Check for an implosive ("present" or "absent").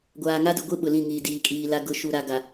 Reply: present